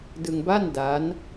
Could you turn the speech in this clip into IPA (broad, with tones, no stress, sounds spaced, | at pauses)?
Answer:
d ɯ˧ ŋ b a˥˩ n d aː˦˥ n